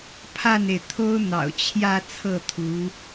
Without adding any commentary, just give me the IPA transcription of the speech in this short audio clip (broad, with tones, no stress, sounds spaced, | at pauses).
pʰ a˥˩ n e˩ ɪ̯ t̪ʰ o˥ ʊ̯ n̪ ɑ̰˨˩ ʊ̯ t͡ɕʰ j ä˥˧ t͡sʰ ɤ˥˩ t̪ʰ u˧˥